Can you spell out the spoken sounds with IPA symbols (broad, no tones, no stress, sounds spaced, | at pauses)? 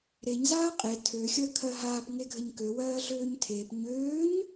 ɾ e ɲ z aː qʼ e tʰ ø xʲ əː kʰ ɜ ɦ aː p ŋ e ɡʱ ə ɲ k ø w ɜː ɮ øː ɲ tʰ eː p ɲ øː ɲ